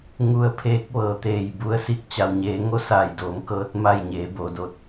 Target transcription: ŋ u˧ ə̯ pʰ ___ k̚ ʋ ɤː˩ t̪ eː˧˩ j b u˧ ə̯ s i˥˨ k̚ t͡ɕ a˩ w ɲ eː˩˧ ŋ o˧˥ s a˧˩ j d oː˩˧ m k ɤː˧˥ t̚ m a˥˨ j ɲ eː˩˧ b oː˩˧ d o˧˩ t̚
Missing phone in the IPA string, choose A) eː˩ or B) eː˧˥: B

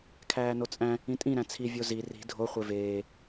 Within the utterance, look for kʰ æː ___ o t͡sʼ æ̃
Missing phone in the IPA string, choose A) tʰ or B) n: B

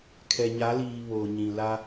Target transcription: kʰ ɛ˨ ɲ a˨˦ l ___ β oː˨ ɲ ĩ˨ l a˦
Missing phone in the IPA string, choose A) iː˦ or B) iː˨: B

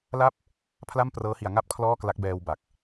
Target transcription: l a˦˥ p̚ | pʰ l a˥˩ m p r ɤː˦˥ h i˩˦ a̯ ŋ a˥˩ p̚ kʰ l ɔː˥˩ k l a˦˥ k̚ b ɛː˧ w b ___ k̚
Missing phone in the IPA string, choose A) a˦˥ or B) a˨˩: B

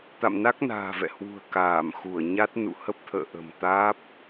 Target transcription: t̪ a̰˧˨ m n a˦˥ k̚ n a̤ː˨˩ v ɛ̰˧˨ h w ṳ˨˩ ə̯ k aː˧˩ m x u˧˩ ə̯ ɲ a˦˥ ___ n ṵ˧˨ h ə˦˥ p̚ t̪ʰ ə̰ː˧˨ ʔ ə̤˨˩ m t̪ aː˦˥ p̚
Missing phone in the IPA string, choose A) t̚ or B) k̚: A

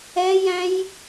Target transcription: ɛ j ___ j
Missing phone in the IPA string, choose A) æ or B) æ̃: B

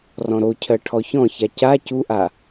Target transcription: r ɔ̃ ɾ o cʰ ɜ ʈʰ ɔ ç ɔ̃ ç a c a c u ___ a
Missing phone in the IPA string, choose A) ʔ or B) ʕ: A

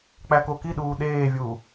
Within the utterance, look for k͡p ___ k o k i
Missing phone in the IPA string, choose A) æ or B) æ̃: A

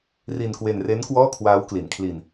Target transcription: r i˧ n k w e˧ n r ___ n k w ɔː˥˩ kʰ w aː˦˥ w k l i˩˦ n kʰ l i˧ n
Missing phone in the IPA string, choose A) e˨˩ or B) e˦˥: B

